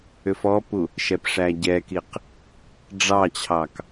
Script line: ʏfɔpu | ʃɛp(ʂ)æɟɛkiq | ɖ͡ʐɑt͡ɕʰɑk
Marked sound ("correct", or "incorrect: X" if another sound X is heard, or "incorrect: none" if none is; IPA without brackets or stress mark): correct